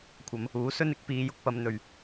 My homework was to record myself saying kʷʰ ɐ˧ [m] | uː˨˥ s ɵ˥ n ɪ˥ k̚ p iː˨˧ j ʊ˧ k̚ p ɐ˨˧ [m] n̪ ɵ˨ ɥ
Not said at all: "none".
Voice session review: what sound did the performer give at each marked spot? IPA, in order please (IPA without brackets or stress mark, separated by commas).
m, m